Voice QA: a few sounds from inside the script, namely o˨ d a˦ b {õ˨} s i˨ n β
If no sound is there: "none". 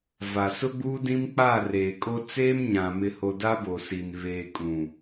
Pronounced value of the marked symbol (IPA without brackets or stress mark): o˨